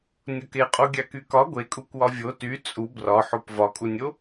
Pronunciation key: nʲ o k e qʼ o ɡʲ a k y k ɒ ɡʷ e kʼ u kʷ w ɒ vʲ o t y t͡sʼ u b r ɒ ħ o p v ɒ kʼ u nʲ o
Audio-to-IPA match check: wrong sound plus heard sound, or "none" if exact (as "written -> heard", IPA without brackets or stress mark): none